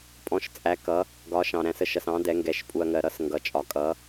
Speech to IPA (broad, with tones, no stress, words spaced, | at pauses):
pʼɔ̃˩˧ʃt͡sʼæ˩˧ kʌ˩˧ | ɡɒ˩˧ʃɑ̃˩ ɾæ̃˩˧sə˩˧ ʃʌ˩sɑ̃˩˧ dɛ˩˧ŋɡɛ˩˧ʃ pʼu˩ɐ̯ŋɜ˩ɾʌ˩˧s ŋɡʌ˩˧t͡ʃʼɒ˩ kʼʌ˩˧